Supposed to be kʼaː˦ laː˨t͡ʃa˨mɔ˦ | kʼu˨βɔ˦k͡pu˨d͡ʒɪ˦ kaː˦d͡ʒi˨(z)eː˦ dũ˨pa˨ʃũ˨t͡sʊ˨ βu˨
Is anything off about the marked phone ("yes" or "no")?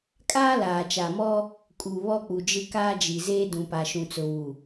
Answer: no